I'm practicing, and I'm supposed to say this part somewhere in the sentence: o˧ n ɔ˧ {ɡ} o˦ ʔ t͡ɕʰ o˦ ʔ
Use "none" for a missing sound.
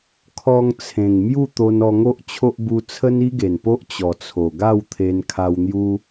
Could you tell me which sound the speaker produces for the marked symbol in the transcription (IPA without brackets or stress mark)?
ŋ